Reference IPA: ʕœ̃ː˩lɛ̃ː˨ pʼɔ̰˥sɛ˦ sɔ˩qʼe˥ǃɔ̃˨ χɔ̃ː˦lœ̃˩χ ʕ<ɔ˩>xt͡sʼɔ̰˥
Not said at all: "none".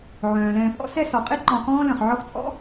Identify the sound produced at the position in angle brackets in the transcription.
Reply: ɔ˦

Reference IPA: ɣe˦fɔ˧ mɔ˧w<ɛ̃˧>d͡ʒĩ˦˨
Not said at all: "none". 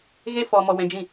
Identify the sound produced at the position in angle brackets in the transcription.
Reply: ɛ̃˧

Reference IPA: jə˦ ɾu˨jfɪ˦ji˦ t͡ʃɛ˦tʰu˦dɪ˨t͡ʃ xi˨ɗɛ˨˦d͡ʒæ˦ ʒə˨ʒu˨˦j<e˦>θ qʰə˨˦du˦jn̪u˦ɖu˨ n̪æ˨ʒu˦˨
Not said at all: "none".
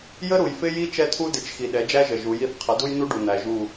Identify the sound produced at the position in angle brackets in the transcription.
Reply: i˦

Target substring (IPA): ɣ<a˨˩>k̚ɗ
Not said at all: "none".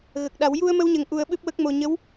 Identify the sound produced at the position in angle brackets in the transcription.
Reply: ə˨˩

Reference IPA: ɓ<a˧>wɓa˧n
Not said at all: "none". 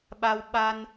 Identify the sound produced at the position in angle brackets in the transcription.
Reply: a˧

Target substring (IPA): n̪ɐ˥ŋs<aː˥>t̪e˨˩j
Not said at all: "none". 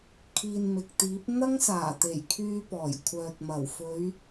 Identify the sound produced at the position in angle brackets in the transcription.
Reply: aː˨˩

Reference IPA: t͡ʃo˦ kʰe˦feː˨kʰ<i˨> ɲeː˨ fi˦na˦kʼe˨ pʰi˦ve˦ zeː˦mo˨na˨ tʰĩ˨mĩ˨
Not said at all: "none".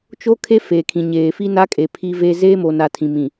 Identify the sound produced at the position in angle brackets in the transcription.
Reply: ĩ˨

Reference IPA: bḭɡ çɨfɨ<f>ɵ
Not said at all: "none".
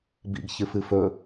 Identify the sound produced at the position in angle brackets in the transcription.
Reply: f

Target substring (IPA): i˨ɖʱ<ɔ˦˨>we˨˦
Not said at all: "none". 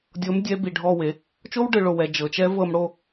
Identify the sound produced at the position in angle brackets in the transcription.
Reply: ɔ˦˨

